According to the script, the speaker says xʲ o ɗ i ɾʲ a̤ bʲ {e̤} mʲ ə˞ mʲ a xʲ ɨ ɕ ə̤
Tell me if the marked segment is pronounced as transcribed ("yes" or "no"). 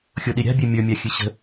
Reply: no